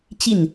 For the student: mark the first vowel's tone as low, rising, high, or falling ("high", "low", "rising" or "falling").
falling